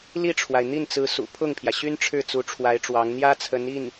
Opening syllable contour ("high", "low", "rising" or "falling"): falling